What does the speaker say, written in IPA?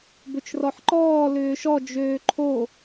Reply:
b ʏ t͡ʃ r ɔ ħ ǃ ɔː l ʏː ʃ ɔ d͡ʒ øː ǃʰ o

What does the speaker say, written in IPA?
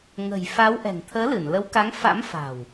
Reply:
ŋ ə̤˨˩ j f a˨˦ w ʔ ɛ̤˨˩ ŋ t̪ʰ əː˨˦ l ɨ˧˩ n l ə˨˦ w k a˨˦ ŋ f a̰˧˥ m f a̤˨˩ w

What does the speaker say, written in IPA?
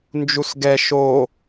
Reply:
n d͡ʒ u s ɡ ɛ ʃ o

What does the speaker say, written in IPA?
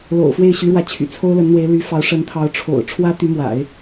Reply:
l o̰˨˩ ʊ̯ f w e˥˩ ɪ̯ ɕ y˧˥ ɻ w ä˧˥ t͡ɕʰ y̰˨˩ t͡sʰ o˥ ʊ̯ l ə˧˥ n n̪ w e˧˥ ɪ̯ l y˧˥ f ɑ˧˥ ʊ̯ ʂ ə˧˥ n t̪ʰ ɑ˧˥ ʊ̯ ʈ͡ʂʰ o̰˨˩ ʊ̯ ʈ͡ʂʰ w ä˥ t̪ y˧˥ m w a̰˨˩˦ ɪ̯

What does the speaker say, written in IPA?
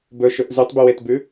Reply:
b ɵ ʃ ɵ ʔ z ʉ tˤ b y w e t b ʉ

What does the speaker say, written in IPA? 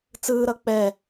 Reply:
t͡s ɯː ɾ ʌ k͡p ɛ

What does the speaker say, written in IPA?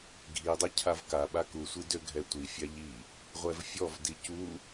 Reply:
ɡʱ i dˤ ɛ cʰ a v k a ɓ a k u sʷ i d ø ɡʱ ɛ tʷ i fʲ a ʎ i | ʁʷ ɛ v fʲ ɔ v d i c u

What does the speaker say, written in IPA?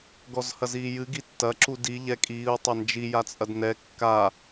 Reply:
ɡ ɔ z h ɐ z iː j ɨ ɡ i tː ɐ ǁ u d i ʎ ɛ kʼ iː ʊ̯ tˤ ɐ n d͡ʒ i j a t͡sʼ ɐ d n ɛ kː a

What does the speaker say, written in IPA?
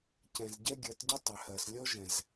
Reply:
c ɛ̃˨ z ɟ ɛ˦ ɡʲ ɜ˨˦ t ɟ y˦ tˤ ø˨ h ɜ˨ s lʲ ɔ˦ ʒ ɛ̃˨ z

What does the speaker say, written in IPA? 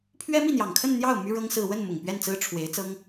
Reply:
pʰ ɥ ɛ˥ m i˥˩ n̪ j ɑ˨˩ ŋ kʰ ə˥˧ n n̪ j ɑ˥˩ ʊ̯ m y˥ ɻ ɤ˥ ŋ s ɹ̩˥˧ w ə˥˩ n m ʊ˨˩ ŋ p ɥ ɛ˥˩ n t͡s ɹ̩˥ ʈ͡ʂʰ w e˧˥ ɪ̯ t͡s ɤ˥ ŋ

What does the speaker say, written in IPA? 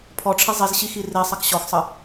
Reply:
pʰ ɔ ʈ͡ʂʰ i zˤ i z ɕ i x i r i sˤ ɐ k ɕ ɔ x sˤ ə

